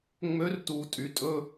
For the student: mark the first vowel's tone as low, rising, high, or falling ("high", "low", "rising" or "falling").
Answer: rising